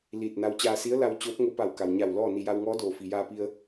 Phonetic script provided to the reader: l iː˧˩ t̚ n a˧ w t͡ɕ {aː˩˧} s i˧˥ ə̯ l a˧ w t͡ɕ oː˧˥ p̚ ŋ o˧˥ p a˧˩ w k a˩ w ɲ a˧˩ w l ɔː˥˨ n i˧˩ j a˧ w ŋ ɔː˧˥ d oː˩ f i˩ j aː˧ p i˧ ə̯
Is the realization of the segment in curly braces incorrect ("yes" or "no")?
yes